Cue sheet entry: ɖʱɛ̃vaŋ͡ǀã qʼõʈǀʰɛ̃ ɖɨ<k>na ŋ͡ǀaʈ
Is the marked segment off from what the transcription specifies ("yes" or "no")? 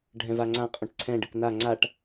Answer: no